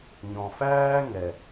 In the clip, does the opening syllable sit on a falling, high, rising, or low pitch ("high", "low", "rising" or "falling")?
low